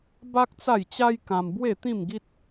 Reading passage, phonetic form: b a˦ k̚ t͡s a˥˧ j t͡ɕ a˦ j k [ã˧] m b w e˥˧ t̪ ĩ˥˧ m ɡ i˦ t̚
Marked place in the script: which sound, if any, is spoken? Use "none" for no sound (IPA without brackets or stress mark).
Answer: ã˧